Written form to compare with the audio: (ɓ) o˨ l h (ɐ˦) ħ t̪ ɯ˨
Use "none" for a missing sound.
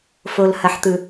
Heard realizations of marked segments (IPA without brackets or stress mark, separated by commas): f, ɐ˨